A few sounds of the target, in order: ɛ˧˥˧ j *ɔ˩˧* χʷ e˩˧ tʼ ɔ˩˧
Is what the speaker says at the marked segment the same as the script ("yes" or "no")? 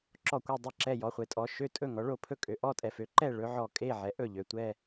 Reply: yes